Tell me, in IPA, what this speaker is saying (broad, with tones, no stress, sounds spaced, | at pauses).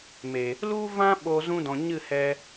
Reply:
m e˨ | l u˦ v ã˦ ɓ o˧ z ũ˦ d ɔ̃˨ ɲ ɨ˦˨ h ɛ˧